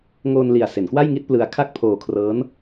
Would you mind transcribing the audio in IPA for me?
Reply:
ŋ oː˧ n l i˨˩ a̯ s e˩˦ n k w a˥˩ j ŋ i˥˩ t̚ p l ɯ˧ a̯ kʰ a˥˩ k̚ pʰ oː˧ kʰ r ɤː˦˥ n

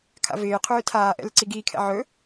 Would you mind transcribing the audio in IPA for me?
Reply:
kʰ a̰ v ɪː qʰ ɵː tʰ aː ʔ ɛ̰ l ɪ ǀ i ɡ iː kʰ ɛ̰ ʕ ɵ

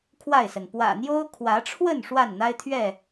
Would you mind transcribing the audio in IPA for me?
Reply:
kʰ w a˥˨ ɪ̯ s ə˩ n p w ä̰˨˩ n̪ j o˦ ʊ̯ kʰ w ä˨˦ ʈ͡ʂʰ w ə˥˨ n ʂ w a˥˨ n n̪ a˦ ɪ̯ t̪ʰ ɥ ɛ˥˨

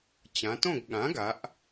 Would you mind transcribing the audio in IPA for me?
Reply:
t͡ɕ ã˩˧ t õ˥˨ ɡ ɠ ã˩˥ ɡ a˩˧ ʔ

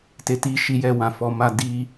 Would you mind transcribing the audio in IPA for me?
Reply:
t e˨ t i˨ ʃ i˨ j ɛ˨ w ã˨ f ɔ˨ m a˧ d i˧

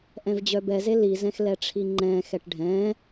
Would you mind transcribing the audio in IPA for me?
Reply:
ʔ ɛ̃ v d͡ʑ œ b ɛ z e l i z ɛ̃ x l ɛ ʈ͡ʂʰ i ŋ͡ǃ ɛ̃ x ɛ ʈ ɖʱ ɛ̃

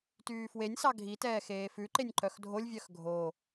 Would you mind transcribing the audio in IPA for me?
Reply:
t yː f w e nʲ s ɑ ɡʱ i t ɛː x eː f ʉ ǃ e nʲ ǃ œ x dʱ o lʲ vʲ œ x ɡʱ o

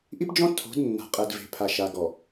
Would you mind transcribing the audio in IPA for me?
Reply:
ʔ i˦ p d͡ʒ ɔ̃˦ tʰ o̤˨˦ d nː a̤˨ qʼ ɛ˨ d v e̤˨ pʰ a˨ ʃ a˨ ɡ ɔ˨

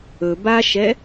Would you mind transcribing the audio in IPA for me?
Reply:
ɵ b a ʃ ɛ

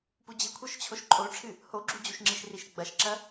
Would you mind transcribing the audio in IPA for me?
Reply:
p u d͡ʑ ɨ kʷʰ ə˞ ʃ t͡ɕʰ o ʃ ǃʼ o ʈ͡ʂʰ ɨ | h o ɡ͡ǁ u d͡ʑ u ʃ ŋ͡ǁ i ʃ r i ʃ ɡ͡b ɐ ʃ ǁ ɐ

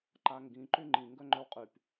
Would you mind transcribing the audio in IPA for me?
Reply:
ǃ a ŋ ɡ ĩ ǃ y ŋ͡ǃ ĩ ŋ ɡ œ ŋ͡ǃ œ w qʼ y p

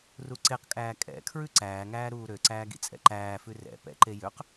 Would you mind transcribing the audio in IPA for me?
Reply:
r u ǀ e q kʼ æː kʼ ɛ̰ kʰ ɹ ʉ ǀ æː ŋ æː ɾ uː ɾ ø ǀ æː ɡ ḭ t͡sʼ ɛ̰ ǃ æː f ʉ r ɛ̰ p ɛ̰ ǃ e j ø q

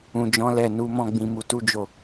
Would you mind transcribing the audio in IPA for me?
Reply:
ũ˨ d͡ʒ ɔ̃˨˦ l ɛ˦˨ n u˨˦ m ɔ̃˦˨ ɡ͡b ĩ˧ m u˧ t u˦ d͡ʒ o˦˨

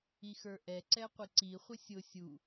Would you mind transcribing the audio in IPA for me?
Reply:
i x ə˞ ʔ ɛ ǀ ɛ qʷ ɪ ǀ i χʷ ɪ sʲ ʊ sʲ u

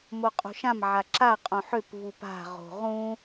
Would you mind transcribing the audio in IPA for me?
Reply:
m o qʼ o̤ ʃ ã m ʕ a ǁ a qʼ õ ħ ø p v u p a̤ ʁ o̤ ʁ ũ

